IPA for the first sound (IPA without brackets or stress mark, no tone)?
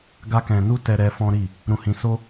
ɡ